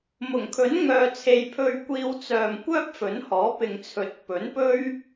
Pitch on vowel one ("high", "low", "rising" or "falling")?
low